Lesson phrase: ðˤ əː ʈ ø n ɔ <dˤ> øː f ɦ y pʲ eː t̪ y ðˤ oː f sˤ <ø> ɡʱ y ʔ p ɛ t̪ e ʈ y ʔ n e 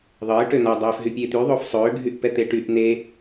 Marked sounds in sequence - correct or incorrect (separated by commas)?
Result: correct, incorrect